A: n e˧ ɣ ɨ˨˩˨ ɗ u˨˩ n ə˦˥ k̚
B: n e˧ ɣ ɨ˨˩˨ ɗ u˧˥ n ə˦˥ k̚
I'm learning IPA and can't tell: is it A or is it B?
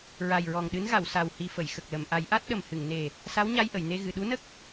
B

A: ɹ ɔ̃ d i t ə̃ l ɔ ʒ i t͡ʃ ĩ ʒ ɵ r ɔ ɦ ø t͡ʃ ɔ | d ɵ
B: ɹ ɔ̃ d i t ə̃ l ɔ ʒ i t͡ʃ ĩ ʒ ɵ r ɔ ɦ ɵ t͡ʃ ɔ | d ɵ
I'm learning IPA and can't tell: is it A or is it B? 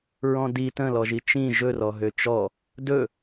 A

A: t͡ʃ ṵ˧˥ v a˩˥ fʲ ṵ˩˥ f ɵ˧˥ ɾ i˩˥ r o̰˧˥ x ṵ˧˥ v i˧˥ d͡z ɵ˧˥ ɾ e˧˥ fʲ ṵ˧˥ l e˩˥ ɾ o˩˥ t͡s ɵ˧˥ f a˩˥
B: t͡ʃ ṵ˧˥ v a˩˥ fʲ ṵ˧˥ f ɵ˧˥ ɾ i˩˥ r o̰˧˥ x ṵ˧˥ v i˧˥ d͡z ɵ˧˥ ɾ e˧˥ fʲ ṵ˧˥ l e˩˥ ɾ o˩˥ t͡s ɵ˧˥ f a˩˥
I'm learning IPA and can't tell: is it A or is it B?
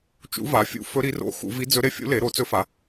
B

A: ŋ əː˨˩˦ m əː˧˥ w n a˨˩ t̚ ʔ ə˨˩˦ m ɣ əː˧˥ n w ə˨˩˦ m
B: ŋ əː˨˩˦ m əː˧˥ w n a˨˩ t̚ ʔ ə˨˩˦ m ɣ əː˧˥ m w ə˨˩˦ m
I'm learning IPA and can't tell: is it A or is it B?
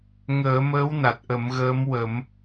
B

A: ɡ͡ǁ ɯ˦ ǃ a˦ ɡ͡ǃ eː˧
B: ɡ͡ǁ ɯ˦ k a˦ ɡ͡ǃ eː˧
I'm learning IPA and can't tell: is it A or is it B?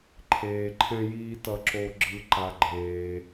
A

